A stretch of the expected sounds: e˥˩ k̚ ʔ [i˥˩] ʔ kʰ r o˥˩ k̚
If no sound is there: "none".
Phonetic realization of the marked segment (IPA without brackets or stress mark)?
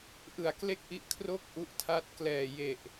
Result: i˦˥